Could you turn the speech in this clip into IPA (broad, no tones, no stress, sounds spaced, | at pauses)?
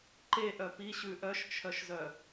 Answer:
ǃ e ʔ œ p i ɕ ʉ ʔ œ ʃ t͡ʃʰ œ ʃ z œ